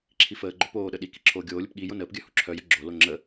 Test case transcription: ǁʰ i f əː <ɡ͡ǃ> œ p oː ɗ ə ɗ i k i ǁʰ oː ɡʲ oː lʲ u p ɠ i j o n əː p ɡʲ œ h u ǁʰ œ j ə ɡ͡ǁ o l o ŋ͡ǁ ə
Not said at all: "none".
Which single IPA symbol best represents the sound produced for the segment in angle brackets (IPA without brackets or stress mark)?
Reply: ɡ͡ǃ